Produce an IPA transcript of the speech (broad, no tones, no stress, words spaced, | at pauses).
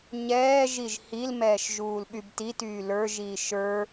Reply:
ɲɛːʒiʒ hil mɛːʃʒuːlɓybti tyːlə˞ʒiː ʃə˞